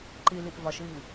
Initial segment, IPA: ǃ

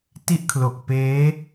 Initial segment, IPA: t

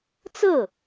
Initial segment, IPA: t͡s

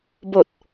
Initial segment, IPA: b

